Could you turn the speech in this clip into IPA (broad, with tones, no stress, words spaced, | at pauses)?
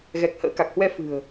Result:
ɣɛ˨˩k̚ hə̰ː˧˥ka˨˩k̚hwɛ˧ fɨ̤˨˩ə̯